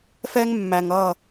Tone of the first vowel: high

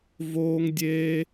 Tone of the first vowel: high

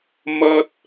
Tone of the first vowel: high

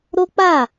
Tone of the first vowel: high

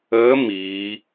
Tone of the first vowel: rising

